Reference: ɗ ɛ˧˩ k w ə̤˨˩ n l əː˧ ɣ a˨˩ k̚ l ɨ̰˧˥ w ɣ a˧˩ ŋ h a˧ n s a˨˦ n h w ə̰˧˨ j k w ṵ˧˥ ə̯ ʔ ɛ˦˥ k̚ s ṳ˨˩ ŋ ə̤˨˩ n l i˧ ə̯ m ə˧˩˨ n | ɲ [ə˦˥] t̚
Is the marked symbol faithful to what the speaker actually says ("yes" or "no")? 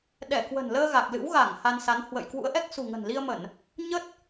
yes